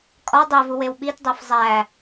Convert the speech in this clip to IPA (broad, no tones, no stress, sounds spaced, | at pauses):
kʼ ɒ dˤ e v u w e w ɓ i t dˤ e f zˤ æ